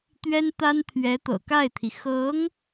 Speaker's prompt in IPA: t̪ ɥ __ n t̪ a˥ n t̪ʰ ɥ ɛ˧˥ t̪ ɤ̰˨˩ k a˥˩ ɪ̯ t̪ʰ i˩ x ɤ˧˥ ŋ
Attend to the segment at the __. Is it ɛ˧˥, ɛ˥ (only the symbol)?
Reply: ɛ˥